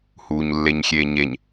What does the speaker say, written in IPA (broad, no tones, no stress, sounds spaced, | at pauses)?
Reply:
h uː ɲ lː e ɲ xʲ eː ɲ e ɲ